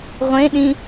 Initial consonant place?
uvular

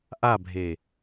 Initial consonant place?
glottal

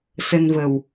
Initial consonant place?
alveolar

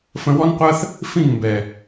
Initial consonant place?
labial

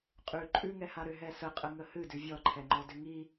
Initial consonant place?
uvular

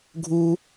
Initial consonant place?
velar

